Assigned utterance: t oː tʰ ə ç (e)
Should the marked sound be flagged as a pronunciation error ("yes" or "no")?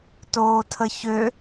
yes